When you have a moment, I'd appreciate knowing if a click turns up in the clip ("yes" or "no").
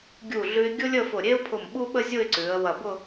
yes